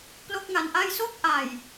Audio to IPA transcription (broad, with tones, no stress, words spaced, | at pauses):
plo˥˩k̚ŋa˧nʔa˥˩j so˥˩k̚ʔa˨˩j